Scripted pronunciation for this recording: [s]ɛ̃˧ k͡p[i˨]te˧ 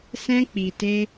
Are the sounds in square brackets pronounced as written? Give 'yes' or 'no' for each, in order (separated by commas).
yes, yes